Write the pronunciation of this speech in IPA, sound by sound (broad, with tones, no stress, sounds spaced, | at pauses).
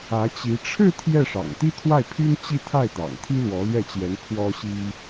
ä˧˥ t͡ɕ i˧˥ ʈ͡ʂʰ ɻ̩˥˧ t̪ʰ j ɛ˥˩ ʂ ɑ̰˨˩ ŋ t̪ i˥ t̪ʰ w a˥˩ ɪ̯ pʰ y˥ n t͡ɕ i˥˧ t̪ʰ a˥˩ ɪ̯ t̪ ɑ̰˨˩ ŋ t̪ʰ i˥ l w ɔ˧˥ l ɥ ɛ˥˩ t͡ɕ j ɛ˧˥ n pʰ w ɔ˥ ɕ i˥